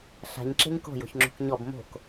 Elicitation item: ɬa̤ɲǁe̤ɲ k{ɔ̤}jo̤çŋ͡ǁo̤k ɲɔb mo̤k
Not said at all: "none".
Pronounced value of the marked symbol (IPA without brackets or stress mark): o̤